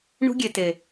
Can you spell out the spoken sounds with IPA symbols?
ɳ ṳ˦ ɡʲ e˨ t e˨

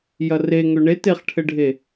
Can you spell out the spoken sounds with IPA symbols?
j ɐ r e ŋ ø ɳ e t e χ ʈʰ ɘ ɖʱ e

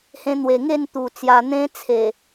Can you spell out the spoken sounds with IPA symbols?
h ẽ˧ n̪ w e˨˩ ŋ e˥˧ n t̪ u˨˩ t͡s j a˧ n̪ ẽ˦ t͡sʰ e˨˩

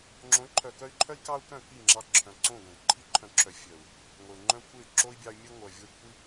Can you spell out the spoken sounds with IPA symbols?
ŋ͡ǁ õ˨˦ y̯ ǃʰ œ˨ k œ˧ y̯ ǃʰ œ˦ i̯ k ɑ˦ u̯ k œ̃˦˨ k i˦˨ ŋ͡ǁ ɑ˧ ǁʰ œ̃˨ ǀ õ˦˨ ɡ œ̃˨ d ǃʰ i˧ ǃʰ œ̃˨˦ ǁʰ œ˨ fʲ œ˨ u̯ | ŋʷ e˨ u̯ ŋ͡ǃ œ̃˦ kʷʰ e˦˨ y̯ ǁ o˦ i̯ bʲ ɑ˧ y̯ mʲ œ˧ ŋʷ œ˨ vʲ o˦ y̯ kʷʰ i˦

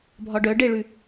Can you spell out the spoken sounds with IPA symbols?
bʱ ɒ ɖ œ ɖ e ɭ ʉ

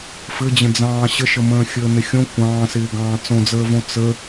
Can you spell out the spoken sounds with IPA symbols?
f ɘ d͡ʑ ə̃ d͡z ɑ̃ː ɕ ə ʃ ə m ə̃ː xʲ əː n ɪ xʲ õ kʷ ɑ̃ː s ɪː ɡ ɑ̃ː t͡s õ d͡z əː v õ t͡s ə

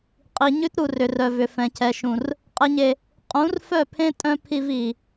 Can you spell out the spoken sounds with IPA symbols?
qʼ i˨ ɲ ʉ˦ t ɾ u˨ r ʏ˨ r œ˨ v ʏ˨ f ɛ̃˨ cʰ ɛ˨ ʃ ũ˨ r | qʼ ɛ˨ ɲ e˨ | qʼ ũ˨˦ r f œ˦˨ pʰ ẽ˦ tʼ œ̃˦ pʰ i˦ v i˨

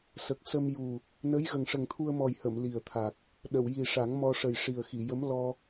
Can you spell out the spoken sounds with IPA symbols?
s ə˨˩ k̚ s ə˧ m j u˨˩ | n ə˧˥ j ɣ ə˨˩ ŋ ʂ ə˨˩ ŋ t̪ʰ u˧ ə̯ m ɔ˨˩ j h ə˨˩˨ m l i˨˩ ə̯ t̪ʰ a˨˩ k̚ | ɗ ə˨˩˨ w j i˨˩ ʂ a˨˩˦ ŋ m ɔ˧ ʂ ə˨˩ j ʂ i˨˩ ə̯ x i˨˩˨ j ə˧˥ m l ɔ˧

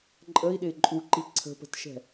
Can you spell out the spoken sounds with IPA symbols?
ǃʼ ə i̯ ɗ ɪ ǃʼ u ǃ i ǀʰ ə̤ p ə̤ t ʃ ɛ̤

